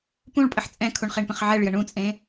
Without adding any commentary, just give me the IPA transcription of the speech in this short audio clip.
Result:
p ũ ɭ pʼ ə ħ t͡sʼ ɛ̃ kʰ u ɳ χ e ɳ p ə̃ χ ʕ ɛ ɭ j ə ɳ ũ t͡sʼ ẽ

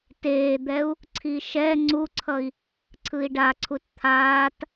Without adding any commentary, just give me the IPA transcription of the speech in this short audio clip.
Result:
t eː d̪ ɛ u̯ | ǀʰ i ʃ ɛ ŋ͡ǀ u ǀʰ ʌ i̯ | ǀʰ ɯ i̯ ɖ a ǀʰ u t t̪ʰ aː t

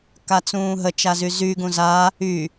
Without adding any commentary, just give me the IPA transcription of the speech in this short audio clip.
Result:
k a t͡s ũː ɦ ə t͡ʃ a z y z y ɡ ũ z a | y

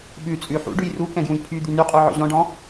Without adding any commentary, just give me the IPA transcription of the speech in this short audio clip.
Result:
ɓ ʉ t͡sʼ ʉ ħ ṵ ɖ ʉ j r u k ɛ̃ ɡ j ũ j pʰ y d̪ y n y qʼ u ʕ ɔ̰ ʑ ɔ̃ ɖ ɔ̃

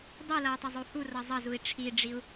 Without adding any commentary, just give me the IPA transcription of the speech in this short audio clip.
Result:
dˤ i l ʌ j tˤ ʌ zˤ u h u r ʌ zˤ ʌ z u i̯ ʈ͡ʂʰ i ɖ͡ʐ i u̯

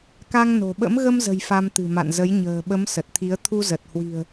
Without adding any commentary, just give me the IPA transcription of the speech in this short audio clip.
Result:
k a˧ ŋ n o̤˨˩ ɓ ə̰˧˥ m ɣ ə˧ m z ə̤˨˩ j f a˧ m t̪ ɨ̤˨˩ m a̰˧˨ n z ə˨˦ j ɲ ə̤ː˨˩ ɓ ə˨˦ m s ə˨˩ t̚ t̪ʰ i˨˦ ə̯ t̪ʰ u˧ z ə˨˩ t̚ h w i̤˨˩ ə̯

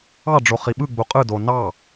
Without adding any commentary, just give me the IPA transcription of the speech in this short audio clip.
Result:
ɑ ɖ͡ʐ o χ i ɓ ɯ ɡ͡b u qʼ ɯ d o n ɑ

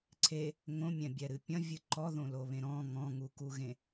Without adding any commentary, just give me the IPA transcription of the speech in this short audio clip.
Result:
ǀʰ e | ŋ õ mʲ ɛ̃ bʲ ɛ ɾ ɨ pʲ ɐ̃ vʲ ɨ ǃ ɔ ð õ l o β ẽ ɾ ɔ̃ ŋ ɔ̃ ŋ u k u ɣ ẽ

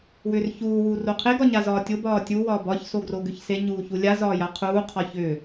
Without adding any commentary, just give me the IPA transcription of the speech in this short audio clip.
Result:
w ʏ r ç uː w uː r o qʰ e ɡ ɒ ɲ a z ɒː tʲ o b ɒː tʲ u w ɒː b ɒ ç s o ɡ r o ɡ ʏ ç s e ɲ uː ç u lʲ a z ɒː j a qʰ uː qʰ ɒ ç ʏː

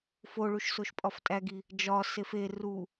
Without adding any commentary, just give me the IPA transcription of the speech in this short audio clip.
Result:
f o ɭ u ʃ s o ʃ pʼ ɒ f tʼ æ ɡ i | d͡ʒ ɒ s e f e r u

